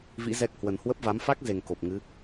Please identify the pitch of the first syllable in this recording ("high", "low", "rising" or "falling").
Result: rising